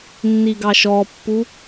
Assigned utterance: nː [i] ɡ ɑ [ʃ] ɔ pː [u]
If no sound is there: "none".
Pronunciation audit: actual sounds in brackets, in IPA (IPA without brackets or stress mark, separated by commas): i, ʃ, u